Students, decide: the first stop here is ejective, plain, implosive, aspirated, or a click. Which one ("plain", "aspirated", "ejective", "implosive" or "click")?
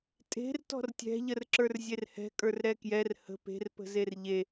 ejective